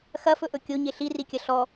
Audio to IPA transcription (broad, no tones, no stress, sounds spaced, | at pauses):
x ɐ f ɵ ʔ ɵ kʲ o ɲ e ɬ i r i kʲ ɐ ɬ ɔ